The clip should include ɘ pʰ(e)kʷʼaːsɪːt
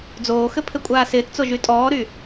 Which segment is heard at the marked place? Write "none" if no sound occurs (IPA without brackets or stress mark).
ɘ